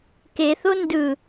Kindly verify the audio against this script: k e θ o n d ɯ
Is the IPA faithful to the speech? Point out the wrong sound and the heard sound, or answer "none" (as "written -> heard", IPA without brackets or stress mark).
none